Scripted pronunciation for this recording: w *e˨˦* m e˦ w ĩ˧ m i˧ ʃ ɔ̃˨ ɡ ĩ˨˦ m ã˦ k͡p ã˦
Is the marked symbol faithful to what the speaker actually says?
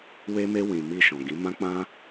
no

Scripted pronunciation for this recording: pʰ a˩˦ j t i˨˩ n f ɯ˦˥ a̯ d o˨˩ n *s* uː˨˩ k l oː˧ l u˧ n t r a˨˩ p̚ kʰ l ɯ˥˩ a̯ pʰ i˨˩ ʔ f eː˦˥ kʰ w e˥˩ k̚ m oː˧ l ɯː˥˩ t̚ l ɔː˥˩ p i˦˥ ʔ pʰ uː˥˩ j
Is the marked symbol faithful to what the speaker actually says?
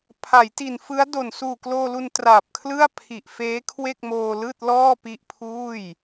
yes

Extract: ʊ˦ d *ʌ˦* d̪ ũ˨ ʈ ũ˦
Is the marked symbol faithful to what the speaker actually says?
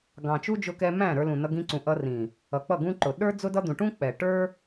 yes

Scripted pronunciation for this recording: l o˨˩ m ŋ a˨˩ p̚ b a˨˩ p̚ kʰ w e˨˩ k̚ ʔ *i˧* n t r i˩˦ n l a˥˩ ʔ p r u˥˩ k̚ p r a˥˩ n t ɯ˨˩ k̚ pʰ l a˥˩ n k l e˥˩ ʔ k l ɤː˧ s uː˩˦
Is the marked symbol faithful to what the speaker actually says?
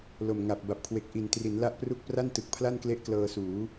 no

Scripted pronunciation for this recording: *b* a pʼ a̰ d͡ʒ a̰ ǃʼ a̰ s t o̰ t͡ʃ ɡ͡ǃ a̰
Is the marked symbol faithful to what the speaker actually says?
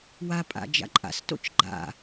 no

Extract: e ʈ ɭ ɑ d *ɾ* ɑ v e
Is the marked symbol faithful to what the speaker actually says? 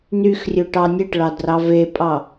no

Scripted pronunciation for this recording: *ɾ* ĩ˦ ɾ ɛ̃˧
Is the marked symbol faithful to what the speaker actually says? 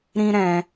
yes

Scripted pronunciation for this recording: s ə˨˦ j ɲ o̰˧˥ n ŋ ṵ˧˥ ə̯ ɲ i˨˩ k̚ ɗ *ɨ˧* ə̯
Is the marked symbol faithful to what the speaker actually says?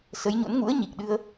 yes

